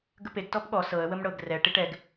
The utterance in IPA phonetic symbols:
ɡ ə p e ɡ t ɔ p ɠ ɔ s ɤ ə̯ w ə m ɽ ɤ ɡ r ɛ ʈ i ʈ ɛ ɡ

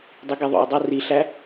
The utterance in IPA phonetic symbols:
dˤ i ɡ i ðˤ o̰ e̯ dˤ o r i ɬ æ

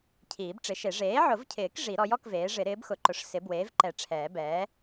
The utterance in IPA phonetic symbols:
cʰ iː˨˩˦ b ʈ͡ʂ ɪ˩˥ ʃ e˨˩˦ ʐ eː˩˥ ʕ ʊ˨˩˦ v cʰ ɪː˨˩˦ k ʐ i˨˩˦ ɾ ɔ˩˥ j ɔ˩˥ k v eː˩˥ ʐ ɪ˨˩˦ ɾ ɪː˩˥ b x ʊ˨˩˦ ǃ ʊ˩˥ ʂ s ɪ˩˥ b w eː˩˥ v ǃ ɛ˨˩˦ ʈ͡ʂʰ ɛː˨˩˦ b ɛː˩˥

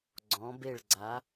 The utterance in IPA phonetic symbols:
ɡ͡ǀ ɔ̃˩˧ b e˧˩ ɭ ɡ͡ǀ a˩˧

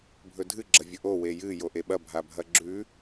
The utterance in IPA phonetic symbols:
bʱ ɵ dʱ ɨ ɡ͡ǁ ɐ vʲ ɵ ʔ o w e j ɨ j o ʔ e ɓ ɐ bʱ a bʱ ɐ ɡ͡ǁ ʉ

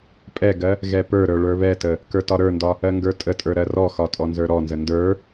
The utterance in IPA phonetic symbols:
pʼ ɛ ɡ ɜ | ɣ ɛ p ə˞ ɾ ə˞ ɭ ə˞ β ɛ t ə | k ə˞ t ɒ ɾ ə˞ n d ɒ | ɜ ŋ ɡ ə˞ tʼ ə tʼ ə˞ ɾ ɜ r ɔ x ɒ tʼ ɔ n z ə˞ ɾ ɔ n z ə n d ə˞

